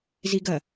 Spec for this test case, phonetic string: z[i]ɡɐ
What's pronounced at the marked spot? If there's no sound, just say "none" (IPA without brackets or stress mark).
i